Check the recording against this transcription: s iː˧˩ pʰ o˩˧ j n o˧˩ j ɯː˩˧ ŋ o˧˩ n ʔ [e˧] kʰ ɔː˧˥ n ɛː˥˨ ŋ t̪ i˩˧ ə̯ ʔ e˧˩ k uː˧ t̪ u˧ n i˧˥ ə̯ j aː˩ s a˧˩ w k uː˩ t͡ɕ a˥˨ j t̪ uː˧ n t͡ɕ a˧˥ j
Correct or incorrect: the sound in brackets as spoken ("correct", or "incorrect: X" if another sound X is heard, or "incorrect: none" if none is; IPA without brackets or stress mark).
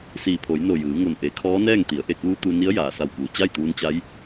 incorrect: e˩˧